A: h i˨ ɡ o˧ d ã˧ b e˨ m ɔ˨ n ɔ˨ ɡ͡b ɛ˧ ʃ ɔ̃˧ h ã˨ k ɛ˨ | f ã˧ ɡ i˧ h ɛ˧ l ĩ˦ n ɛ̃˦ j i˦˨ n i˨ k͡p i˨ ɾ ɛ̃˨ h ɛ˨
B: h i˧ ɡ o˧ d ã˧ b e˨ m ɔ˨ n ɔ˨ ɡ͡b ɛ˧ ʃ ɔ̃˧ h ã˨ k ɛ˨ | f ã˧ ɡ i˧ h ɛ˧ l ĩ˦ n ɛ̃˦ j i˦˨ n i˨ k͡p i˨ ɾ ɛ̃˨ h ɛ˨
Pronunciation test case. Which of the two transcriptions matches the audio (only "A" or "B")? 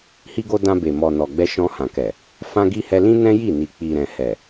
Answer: B